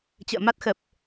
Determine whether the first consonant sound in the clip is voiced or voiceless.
voiceless